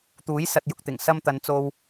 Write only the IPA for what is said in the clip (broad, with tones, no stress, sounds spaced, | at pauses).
t̪ uː˨˥ j s ɐ˨ t̚ j ʊ˨ k̚ t̪ ɪ˨˩ ŋ s ɐ˧ m t̪ ɐ˨˧ n t͡s o˧ w